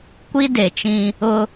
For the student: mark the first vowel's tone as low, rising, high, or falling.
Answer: high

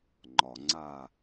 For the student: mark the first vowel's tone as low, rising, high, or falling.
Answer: low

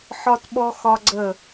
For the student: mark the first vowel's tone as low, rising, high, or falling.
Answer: high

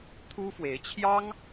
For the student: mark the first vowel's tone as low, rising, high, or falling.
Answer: high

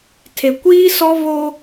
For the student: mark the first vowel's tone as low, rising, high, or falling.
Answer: low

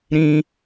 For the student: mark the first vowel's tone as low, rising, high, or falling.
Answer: high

